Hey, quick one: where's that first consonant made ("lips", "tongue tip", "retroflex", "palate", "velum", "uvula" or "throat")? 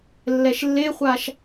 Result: tongue tip